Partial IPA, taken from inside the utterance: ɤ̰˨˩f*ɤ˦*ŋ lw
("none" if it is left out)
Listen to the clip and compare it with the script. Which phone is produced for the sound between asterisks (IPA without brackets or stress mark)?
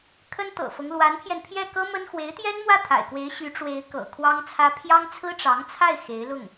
ɤ˦